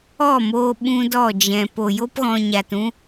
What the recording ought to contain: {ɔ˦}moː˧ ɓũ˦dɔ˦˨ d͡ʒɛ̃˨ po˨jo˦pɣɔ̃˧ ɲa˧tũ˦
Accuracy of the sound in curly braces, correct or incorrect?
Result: incorrect